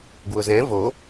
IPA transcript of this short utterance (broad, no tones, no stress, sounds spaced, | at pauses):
ɡ w ʊ z ɛ̃ v o